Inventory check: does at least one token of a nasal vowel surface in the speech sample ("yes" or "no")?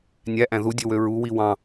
yes